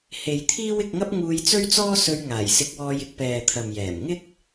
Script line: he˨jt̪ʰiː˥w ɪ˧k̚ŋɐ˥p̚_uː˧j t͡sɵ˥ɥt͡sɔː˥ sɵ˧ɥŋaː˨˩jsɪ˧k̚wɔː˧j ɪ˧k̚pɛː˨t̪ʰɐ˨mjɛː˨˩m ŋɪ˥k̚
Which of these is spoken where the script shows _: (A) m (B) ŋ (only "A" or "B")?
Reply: B